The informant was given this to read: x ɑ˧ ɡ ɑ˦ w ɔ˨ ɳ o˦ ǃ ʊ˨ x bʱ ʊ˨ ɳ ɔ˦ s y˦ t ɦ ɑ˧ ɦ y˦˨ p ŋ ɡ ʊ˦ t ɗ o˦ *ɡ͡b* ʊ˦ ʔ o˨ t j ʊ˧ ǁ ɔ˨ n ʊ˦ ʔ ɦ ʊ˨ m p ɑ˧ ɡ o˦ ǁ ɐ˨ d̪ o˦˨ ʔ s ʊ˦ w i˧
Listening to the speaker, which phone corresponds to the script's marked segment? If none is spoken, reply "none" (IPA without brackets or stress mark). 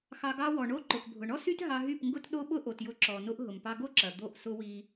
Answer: ɓ